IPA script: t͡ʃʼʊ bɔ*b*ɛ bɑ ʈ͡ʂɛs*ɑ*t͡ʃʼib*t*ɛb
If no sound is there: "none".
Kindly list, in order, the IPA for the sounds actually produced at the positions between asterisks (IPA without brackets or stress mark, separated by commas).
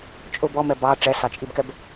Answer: m, ɑ, k